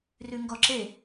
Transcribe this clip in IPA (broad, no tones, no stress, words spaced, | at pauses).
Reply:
rʉŋɡɔǁe